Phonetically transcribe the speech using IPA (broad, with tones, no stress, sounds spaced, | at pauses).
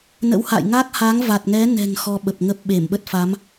n ə̰˧˥ w h a̰ː˧˨ j ŋ a˦˥ k̚ h a˨˦ ŋ v a˨˩ t̚ ŋ ɛ˨˦ n ɛ̤˨˩ ŋ x ɔ˧ ɓ ə˨˩ p̚ ŋ ə˦˥ p̚ ɓ e˧˩ m ɓ ə˦˥ t̚ f a˨˦ m